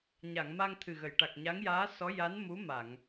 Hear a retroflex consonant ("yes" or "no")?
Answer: yes